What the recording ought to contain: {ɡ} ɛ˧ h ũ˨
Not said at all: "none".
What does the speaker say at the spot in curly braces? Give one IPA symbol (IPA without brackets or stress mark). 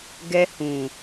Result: ɡ